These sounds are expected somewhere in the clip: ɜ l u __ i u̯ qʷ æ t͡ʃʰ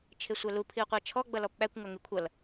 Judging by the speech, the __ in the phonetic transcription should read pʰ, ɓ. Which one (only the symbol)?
pʰ